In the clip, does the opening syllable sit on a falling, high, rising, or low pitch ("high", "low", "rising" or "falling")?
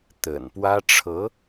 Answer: low